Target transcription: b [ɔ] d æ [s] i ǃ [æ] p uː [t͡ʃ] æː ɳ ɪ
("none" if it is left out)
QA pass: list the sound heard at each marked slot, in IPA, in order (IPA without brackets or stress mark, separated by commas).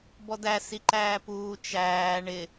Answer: ɔ, s, æː, t͡ʃ